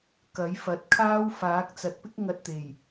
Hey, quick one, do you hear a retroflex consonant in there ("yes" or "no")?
no